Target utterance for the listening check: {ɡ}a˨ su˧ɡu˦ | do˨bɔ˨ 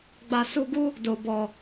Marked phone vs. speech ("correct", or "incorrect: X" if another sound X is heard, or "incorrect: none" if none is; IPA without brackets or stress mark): incorrect: ɡ͡b